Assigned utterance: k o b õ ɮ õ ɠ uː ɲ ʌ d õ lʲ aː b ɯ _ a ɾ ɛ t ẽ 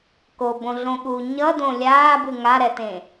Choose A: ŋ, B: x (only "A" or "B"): A